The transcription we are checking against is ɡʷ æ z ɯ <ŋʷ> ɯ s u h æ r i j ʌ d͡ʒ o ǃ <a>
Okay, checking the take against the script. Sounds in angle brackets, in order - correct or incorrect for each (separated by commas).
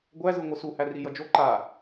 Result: correct, correct